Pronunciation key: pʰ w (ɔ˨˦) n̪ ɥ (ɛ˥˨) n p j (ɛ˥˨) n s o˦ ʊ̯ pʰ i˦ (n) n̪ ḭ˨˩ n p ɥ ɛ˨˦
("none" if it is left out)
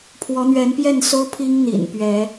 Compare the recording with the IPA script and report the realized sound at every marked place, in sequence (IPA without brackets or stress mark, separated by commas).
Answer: ɔ˨˦, ɛ˨˦, ɛ˥˨, ŋ